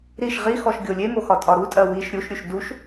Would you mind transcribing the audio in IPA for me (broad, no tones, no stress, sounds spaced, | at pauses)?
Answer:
ɾ i ʃ ʁ i x ɔ ʃ ɡʲ o lʲ e m o x ɒ tʼ ɒ ɾ u tʼ ɜ w i ʃ ɾʲ u ʃ ɾʲ u ʃ d u ʃ